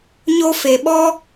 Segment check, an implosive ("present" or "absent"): present